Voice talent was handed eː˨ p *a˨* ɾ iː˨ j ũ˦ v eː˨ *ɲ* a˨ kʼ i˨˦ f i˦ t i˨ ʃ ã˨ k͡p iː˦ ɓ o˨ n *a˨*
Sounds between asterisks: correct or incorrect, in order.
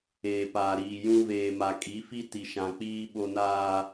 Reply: incorrect, incorrect, incorrect

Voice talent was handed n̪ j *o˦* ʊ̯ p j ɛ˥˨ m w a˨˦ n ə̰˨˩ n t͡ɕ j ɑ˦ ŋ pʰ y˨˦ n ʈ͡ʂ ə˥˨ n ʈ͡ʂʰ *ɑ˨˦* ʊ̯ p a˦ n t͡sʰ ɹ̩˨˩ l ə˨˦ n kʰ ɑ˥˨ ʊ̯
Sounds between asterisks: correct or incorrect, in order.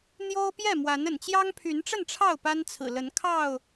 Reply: correct, incorrect

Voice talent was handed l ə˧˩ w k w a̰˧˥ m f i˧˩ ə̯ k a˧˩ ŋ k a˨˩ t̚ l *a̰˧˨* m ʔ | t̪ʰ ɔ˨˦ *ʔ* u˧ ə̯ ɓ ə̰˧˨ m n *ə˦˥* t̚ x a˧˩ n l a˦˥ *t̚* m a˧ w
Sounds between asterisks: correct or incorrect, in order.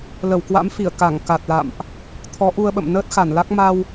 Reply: correct, correct, incorrect, incorrect

